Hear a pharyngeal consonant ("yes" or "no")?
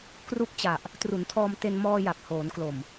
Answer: no